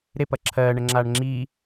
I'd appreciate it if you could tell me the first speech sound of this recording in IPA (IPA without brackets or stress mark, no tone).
ɾ